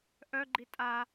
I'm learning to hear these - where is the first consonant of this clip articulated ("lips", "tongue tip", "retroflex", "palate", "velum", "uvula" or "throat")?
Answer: throat